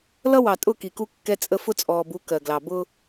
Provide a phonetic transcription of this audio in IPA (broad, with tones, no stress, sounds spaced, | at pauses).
l ʌ˦ w ɑ˨ tʼ ʊ˦˨ k i˨ k u˦ kː ɛ˦ t͡sʼ ə˦ f ʊ˦ t͡sʼ ɔː˨ b u˨˦ k ɜ˨ ɡ l ɑ˨ b ʊ˦